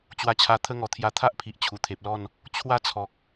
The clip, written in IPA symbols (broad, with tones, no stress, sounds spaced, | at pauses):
t͡ɕ w a˧ t͡ɕʰ a˧ t̪ʰ ə˦ ŋ ɔ˨˩ t̪ʰ j a˧ t̪ʰ a˦ ʔ pʰ i˨ ʔ t͡ɕʰ u˨˩ t̪ʰ e˨ p̚ l ɔ˥˧ n | t͡ɕʰ w a˦ t͡sʰ ɔ˨ k̚